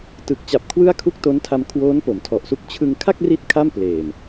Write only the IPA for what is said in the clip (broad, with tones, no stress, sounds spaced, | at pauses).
t ɯ˨˩ k̚ t͡ɕ a˨˩ p̚ kʰ w ɯ˥˩ a̯ kʰ u˥˩ k̚ t o˦˥ n tʰ a˧ m kʰ w oː˦˥ n p o˩˦ m tʰ ɔ˨˩ ʔ s u˦˥ k̚ t͡ɕʰ ɯ˧ ŋ kʰ a˥˩ k̚ r i˥˩ t̚ kʰ a˥˩ m p l eː˨˩ m